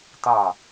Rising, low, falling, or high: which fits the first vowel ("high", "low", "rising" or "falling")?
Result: falling